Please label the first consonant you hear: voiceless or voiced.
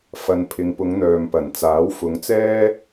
voiceless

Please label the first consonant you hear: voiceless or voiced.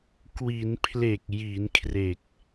voiceless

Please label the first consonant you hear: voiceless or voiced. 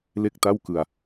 voiced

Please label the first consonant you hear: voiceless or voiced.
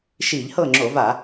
voiceless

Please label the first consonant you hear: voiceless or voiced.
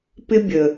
voiceless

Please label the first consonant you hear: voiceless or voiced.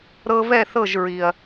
voiced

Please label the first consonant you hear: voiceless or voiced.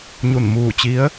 voiced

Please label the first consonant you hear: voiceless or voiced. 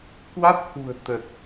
voiceless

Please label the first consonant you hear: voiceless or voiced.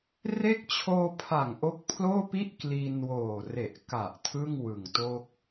voiced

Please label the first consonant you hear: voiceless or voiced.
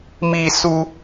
voiced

